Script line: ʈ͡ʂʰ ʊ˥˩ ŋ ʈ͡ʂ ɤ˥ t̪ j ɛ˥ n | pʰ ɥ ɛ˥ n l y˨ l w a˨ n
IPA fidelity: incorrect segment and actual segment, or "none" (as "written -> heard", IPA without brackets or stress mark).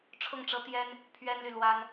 a˨ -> a˥